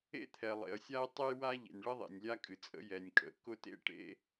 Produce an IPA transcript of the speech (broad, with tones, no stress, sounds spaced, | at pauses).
ḛ˥ t̪ʰ ɛ˩ lˠ ḛ˩ ə̯ sʲ a˥ ə̯ tˤ ɘ˥ j w a˥ ʎ ḛ˩ nʲ ɭ ə˥ ðˤ ḛ˩ nʲ lʲ a˥ kʼ ɨ˩ t͡sʼ ə̰˥ j ɛ˩ nʲ kʼ ə̰˩ k ʊ˥ t ḛ˥ ʈ ḛ˥